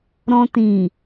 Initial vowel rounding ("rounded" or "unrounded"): rounded